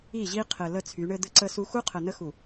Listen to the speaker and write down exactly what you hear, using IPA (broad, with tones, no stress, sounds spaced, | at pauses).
i˦˨ ʑ i˦ qʰ ɘ˨ l ə˦˨ t͡sʰ y˨˦ ɳ ɘ˦ d̪ ɘ˦ ǀ ə˦ s u˦ x u˦ qʰ ə˨ n ə˦ x u˨